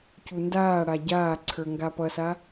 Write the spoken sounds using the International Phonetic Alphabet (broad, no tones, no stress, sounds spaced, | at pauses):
c u n d aː ɽ a ɟ aː ǀʰ ə˞ ŋ ɡ a p ʌ s a